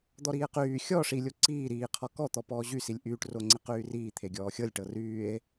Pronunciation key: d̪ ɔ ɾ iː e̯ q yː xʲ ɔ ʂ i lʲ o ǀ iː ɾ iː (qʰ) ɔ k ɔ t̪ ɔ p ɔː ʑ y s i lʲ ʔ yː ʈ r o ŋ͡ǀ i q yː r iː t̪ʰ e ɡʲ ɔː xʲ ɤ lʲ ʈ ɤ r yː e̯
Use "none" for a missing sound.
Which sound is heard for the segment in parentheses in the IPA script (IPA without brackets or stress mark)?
qʰ